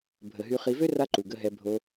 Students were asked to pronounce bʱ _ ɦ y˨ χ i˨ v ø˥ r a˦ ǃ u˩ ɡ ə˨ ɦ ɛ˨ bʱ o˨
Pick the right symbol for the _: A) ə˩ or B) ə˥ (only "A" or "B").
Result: A